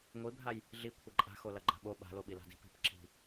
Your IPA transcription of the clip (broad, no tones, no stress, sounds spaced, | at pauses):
ŋʷ i bʱ a j | ɮ i kʷʰ ɐ ǃʼ a̤ x o l ɐ ɡ͡ǃ a̤ ɓ o ɓ a̤ l o ɓ i l a̤ d i̤ p i̤ p ǁ i̤